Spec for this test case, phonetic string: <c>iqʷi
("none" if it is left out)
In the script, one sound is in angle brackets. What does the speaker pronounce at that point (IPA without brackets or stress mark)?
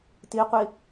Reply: t